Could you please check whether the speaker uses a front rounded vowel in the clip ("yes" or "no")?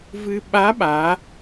no